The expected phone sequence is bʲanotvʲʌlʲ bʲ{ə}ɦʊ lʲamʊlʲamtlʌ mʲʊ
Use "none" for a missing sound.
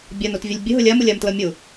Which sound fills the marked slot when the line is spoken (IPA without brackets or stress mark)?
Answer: ə